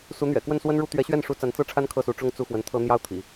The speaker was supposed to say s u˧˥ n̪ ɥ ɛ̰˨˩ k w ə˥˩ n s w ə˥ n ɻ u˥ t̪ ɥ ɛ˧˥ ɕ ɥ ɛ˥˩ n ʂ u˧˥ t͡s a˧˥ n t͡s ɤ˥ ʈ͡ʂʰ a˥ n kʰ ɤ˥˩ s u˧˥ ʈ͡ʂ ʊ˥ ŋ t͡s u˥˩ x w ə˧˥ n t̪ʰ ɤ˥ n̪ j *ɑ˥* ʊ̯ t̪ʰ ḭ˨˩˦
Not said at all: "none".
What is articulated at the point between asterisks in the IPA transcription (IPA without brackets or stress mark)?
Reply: ɑ˥